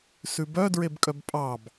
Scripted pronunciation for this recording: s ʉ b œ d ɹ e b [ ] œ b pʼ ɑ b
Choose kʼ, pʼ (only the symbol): kʼ